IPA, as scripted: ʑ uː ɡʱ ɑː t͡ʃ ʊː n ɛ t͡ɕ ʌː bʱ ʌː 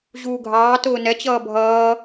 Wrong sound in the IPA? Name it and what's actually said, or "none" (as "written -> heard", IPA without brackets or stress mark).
t͡ʃ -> t